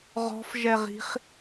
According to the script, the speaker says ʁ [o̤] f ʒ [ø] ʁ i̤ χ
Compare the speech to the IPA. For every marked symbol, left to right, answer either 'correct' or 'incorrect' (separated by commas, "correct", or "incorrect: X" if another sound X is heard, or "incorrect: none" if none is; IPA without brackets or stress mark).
incorrect: ɔ̤, incorrect: ɛ